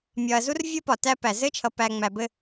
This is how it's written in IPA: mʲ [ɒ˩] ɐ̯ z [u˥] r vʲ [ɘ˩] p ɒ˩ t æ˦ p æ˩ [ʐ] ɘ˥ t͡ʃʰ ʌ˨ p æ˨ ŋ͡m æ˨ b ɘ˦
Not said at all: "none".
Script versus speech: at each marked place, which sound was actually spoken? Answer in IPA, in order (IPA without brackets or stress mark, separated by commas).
ɒ˨, u˥, ɘ˦, z